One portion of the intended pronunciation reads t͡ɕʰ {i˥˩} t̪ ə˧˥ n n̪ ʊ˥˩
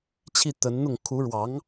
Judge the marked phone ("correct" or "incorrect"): correct